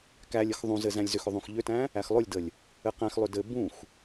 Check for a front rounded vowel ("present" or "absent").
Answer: present